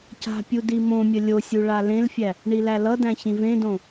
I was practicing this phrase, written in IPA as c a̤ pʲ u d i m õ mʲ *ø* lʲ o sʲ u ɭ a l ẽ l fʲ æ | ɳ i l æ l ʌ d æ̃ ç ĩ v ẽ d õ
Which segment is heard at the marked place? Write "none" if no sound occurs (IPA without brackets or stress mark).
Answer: ə